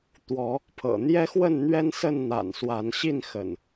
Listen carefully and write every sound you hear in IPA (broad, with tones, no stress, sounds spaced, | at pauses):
t̪ w ɔ˨˦ | pʰ ɤ̰˨˩ n̪ j ɛ˦ x w ə˥˨ n n̪ ɥ ɛ˦ n s ə˥˨ n n̪ a̰˨˩ n s w a˨˦ n ɕ i˥˨ n x ə̰˨˩ n